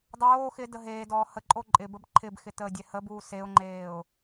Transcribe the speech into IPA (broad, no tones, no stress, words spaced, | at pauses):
dˤoː xɪ dəɦeːdɔː həǃʼo ǃʼɪbəb ǃʰɪbxɪ təːdʲɛhəbuː seʊ̯ŋ͡ǃeːʊ̯